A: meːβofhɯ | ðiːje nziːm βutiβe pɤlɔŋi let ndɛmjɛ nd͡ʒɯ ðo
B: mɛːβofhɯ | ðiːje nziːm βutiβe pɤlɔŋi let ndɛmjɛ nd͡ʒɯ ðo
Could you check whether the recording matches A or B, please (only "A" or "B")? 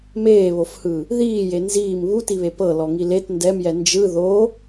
A